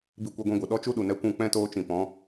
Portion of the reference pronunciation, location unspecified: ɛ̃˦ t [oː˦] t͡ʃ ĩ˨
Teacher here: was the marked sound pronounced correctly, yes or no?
yes